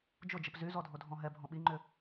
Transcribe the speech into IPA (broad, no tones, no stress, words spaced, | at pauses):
d͡ʒʊd͡ʒəp zyzɔ dʱodʱɔ̃ɦɛbʱɔ̃ ɓiŋ͡ǃʏ